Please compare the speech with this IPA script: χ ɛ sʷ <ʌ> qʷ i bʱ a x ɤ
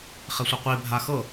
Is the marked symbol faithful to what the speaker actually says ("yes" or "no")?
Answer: yes